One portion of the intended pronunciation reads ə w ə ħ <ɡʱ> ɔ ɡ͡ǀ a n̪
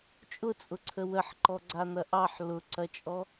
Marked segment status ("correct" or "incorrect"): incorrect